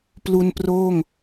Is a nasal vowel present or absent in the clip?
absent